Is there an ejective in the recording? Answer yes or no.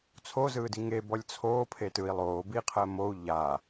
no